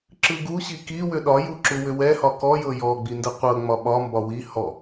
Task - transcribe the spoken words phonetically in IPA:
ǁ ɯ ɡ u ɕ i k i w ʏ ɗ ɒ j u ǁ u w ʏ w ɛ h ɒ k ɔ j ɤ j ɔ ɡ͡b i n d ɯ qʷ ɤ ŋ͡m ɒ ɓ ɒ m b ɒ w i h ɔ

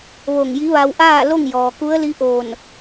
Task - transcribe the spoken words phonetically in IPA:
ʋ o˧˩ ŋ j i˧˥ ʋ a˧ w ʔ aː˥˨ l o˥˨ ŋ j ɔː˩ k u˧˥ ə̯ l i˧˥ ʔ oː˧˩ n

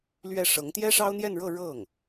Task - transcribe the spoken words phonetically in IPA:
l ɥ ɛ˥˩ ʂ ɤ˧˥ ŋ t̪ j ɛ˥ ʂ ɑ˥ ʊ̯ n̪ j ɛ˥˧ n ɻ ɤ˥˧ ɻ ɤ˥˩ ŋ

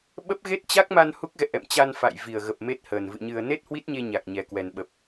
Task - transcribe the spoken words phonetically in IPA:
ɓ ə˦˥ p̚ ɣ e˦˥ t̚ t͡ɕ a˦˥ k̚ m a˧ n h u˦˥ k̚ ɣ ɛ̰˧˨ ʔ ɛ̰˧˨ m t͡ɕ a˧ n f a̰˧˨ j v i˨˩ ə̯ ɣ ə˨˩ p̚ m e˦˥ t̚ h əː˨˩ n v ɨ̰˧˨ ɲ ɨ˨˩ ə̯ n e˦˥ t̚ h w i˦˥ t̚ ɲ e˧ ɲ a˨˩ k̚ ɲ ɛ˨˩ k w ɛ˨˩ n ɓ ə˨˩ p̚

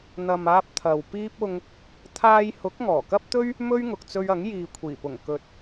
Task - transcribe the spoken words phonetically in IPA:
n̪ ɐ˨ m aː˧ p̚ t̪ʰ ɐ˨ w p iː˥ p̚ ʊ˧ ŋ | t̪ʰ aː˧ j h ʊ˨˥ k̚ ŋ ɔː˨˩ k ɐ˥ p̚ t̪ ɵ˥ ɥ | m ɵ˥ ɥ ŋ ʊ˨ k̚ t͡s ɵ˧ ɥ ɐ˨˥ ŋ j iː˨ kʷʰ iː˨˩ p ʊ˨˩ ŋ k ɵ˨ t̚

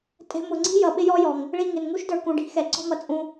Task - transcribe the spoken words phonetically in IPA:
tʼ ɛ̤˧ m ʊ˨ ŋ͡ǀ i̤˦ j ʌ˨ ɓ ɪ˦ j ɔ˦ j ɔ˨ ŋ | ɭ i˦˨ ŋ ɪ˨ n ŋ u˦ ʃ d ə˞˧ k ũ˨ ɖ i̤˧ x ɛ˨ ǀ ɔ̤˦ m ʌ˧ t͡sʼ ũ˧

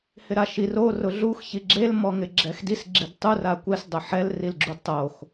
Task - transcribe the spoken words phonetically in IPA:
h ɪ ɾ a ʃ i r o r ʊ ɮ u x ç i ɡ͡ǁ e l m ɔ ŋ ɪ ɡ͡ǁ ɛ x d i s ɡ͡ǁ i d tˤ u r a kʷ ɛ s dˤ ʊ ħ ɛ l r i l ɡ͡ǁ u d tˤ o x

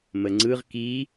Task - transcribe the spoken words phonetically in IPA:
m ə ŋ͡ǀ ɯ ʁ k i

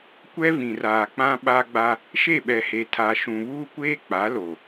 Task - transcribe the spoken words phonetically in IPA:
kʷ ɛ˦ v ĩ˨ r aː˨ k͡p ã˦ ɓ a˦ ɡ͡b a˦ | ʃ e˦˨ ɓ ɛ˨ h e˨ tʰ a˨ ʃ ũ˨ β uː˦ kʷ eː˦ k͡p a˨˦ l o˨

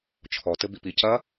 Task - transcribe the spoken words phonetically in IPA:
t͡ʃʰ ɔ t ɘ b i p i c ɐ

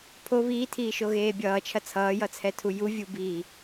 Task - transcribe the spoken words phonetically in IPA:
pʰ o β iː tʰ iː ʃ o ɣ eː bʲ ʌː t͡ʃʰ ɐ t͡sʰ ʌː j ʌ t͡sʰ ɛ tʰ u j u vʲ u b iː

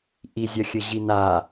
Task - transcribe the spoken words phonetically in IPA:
ʔ i zʲ ɐ xʲ ɘ ʑ i n a

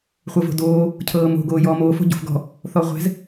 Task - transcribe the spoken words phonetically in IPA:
χʷ ɤ v o̤ d oː | cʰ ɤː m o̤ ɡ oː j ɔː m oː f o̤ ɟ o̤ f ɡ ɔ̤ | θ ɔ ʁʷ ɛ̤ z

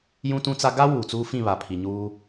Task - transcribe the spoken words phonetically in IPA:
j ũ˦ t ũ˦ t͡s a˦ ɡ a˦ w uː˨ t͡s uː˦ f ĩ˦˨ β a˨ pʰ i˨ ɲ uː˦

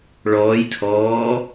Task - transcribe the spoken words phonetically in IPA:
ɭ ɔː j tʰ ɔː

